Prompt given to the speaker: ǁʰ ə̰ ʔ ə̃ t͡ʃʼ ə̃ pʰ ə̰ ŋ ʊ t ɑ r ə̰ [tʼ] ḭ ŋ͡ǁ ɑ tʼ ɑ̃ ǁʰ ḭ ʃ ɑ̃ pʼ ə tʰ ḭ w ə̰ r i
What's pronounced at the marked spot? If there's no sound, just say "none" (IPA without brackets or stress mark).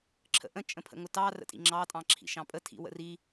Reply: tʼ